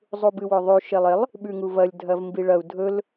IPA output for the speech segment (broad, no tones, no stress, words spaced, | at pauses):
zˤubɨwɵðˤʉ ʃelˠelˠ | ɓʉŋuvɐlʲ dʱɐvmbiɭɐu̯ dʱɵl